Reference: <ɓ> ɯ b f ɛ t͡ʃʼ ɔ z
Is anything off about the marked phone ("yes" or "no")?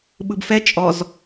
no